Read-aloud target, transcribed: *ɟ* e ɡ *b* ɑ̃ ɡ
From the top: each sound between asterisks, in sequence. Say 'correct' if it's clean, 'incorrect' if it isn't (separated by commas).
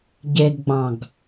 correct, incorrect